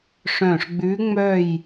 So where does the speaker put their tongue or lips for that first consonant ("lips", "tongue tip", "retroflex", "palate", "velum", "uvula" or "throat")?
retroflex